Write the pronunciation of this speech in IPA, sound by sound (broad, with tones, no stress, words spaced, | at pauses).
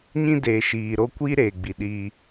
ɲĩ˦deː˨ʃiː˨ ɾo˦ kʷi˦ ɾeː˨ɡ͡bi˨ɗiː˦